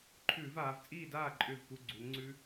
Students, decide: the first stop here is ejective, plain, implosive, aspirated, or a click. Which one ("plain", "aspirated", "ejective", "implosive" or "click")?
click